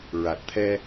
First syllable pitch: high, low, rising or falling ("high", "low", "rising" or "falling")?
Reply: low